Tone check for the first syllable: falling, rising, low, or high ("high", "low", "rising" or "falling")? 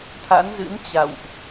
rising